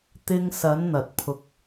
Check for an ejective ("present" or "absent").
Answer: absent